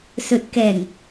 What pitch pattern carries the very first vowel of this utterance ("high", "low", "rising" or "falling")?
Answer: low